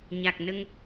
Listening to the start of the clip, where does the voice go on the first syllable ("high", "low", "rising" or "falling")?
low